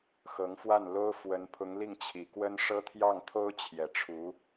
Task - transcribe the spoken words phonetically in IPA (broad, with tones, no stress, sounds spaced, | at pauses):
x ɤ˧˥ ŋ f w a˥˩ n l o˥ ʊ̯ f w ə˧˥ n pʰ ʊ˧˥ ŋ l i˥˩ ŋ t͡ɕʰ i˨˩ k w ə˥ n ʂ ɤ˥ t̪ʰ j ɑ˥˩ ŋ t̪ʰ o˥ ʊ̯ t͡ɕʰ j ɛ˨˩ ʈ͡ʂʰ u˧˥